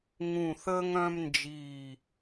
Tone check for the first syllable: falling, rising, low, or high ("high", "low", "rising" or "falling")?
low